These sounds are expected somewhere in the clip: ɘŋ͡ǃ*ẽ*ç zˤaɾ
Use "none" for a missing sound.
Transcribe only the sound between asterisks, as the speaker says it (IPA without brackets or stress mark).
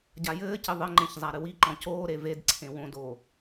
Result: ẽ